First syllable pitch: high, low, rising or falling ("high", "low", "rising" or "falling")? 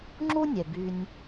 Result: high